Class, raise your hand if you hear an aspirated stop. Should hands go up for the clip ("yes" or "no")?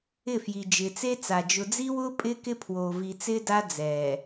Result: yes